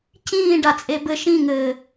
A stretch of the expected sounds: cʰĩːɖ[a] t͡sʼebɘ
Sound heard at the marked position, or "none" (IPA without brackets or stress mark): a